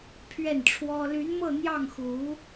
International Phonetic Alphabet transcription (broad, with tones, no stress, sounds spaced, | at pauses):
pʰ ɥ ɛ˥˩ n ʈ͡ʂʰ w ɔ˥ l y˧˥ n m ɤ˥˧ n̪ j ɑ˥˩ ŋ x u˧˥